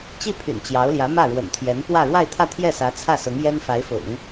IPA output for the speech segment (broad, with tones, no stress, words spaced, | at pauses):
t͡ɕi˥˩pʰy̰˨˩n t͡ɕjɑ˧˥ʊ̯ljä˧˥ mä˥˩ɻwə̰˨˩nt̪ʰjɛ˧˥npwä˥˧ ɻwa˥˧ɪ̯t̪ʰä˥˧ t̪ʰjɛ˥˩sä˧˥ t͡sʰä˥˩sʊ˧˥ŋjɛ˥n fa˧˥ɪ̯fʊ̰˨˩˦ŋ